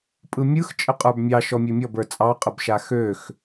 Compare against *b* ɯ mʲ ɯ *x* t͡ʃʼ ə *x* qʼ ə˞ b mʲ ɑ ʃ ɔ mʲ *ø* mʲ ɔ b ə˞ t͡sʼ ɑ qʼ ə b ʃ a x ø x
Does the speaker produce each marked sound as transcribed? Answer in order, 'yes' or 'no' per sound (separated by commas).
no, yes, no, yes